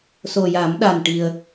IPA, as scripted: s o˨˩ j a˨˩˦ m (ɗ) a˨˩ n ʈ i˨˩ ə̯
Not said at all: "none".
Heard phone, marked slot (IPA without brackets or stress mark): ɗ